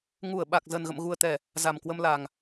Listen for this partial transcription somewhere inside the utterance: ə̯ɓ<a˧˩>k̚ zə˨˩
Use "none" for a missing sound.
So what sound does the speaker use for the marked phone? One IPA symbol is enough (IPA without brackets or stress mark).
a˨˩